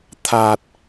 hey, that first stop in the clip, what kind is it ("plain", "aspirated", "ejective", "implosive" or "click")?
aspirated